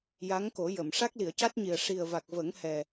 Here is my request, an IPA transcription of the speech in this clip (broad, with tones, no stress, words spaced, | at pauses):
ja˧˥ŋko˨˩˦jə˨˩˨m ʂa˦˥k̚li˨˩˨ə̯ca˦˥t̚ɲi˨˩ə̯ ʂi˨˩ə̯va˨˩k̚və˨˩˦ŋhɛ˨˩